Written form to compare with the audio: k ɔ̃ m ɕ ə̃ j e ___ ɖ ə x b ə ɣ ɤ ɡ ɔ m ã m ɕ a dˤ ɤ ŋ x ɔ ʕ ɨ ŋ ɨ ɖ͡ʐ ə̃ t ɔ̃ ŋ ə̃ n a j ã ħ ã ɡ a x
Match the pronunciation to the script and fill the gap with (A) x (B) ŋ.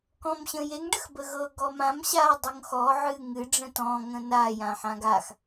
B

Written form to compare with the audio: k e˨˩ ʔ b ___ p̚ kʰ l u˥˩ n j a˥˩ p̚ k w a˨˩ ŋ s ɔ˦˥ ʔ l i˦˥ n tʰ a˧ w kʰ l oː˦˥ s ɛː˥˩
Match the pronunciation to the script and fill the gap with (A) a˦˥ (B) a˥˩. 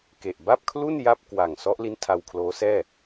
B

